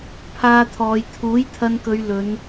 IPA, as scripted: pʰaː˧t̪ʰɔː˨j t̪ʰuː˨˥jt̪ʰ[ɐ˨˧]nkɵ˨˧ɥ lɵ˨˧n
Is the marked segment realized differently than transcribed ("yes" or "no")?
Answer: yes